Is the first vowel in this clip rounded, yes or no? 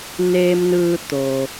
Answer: no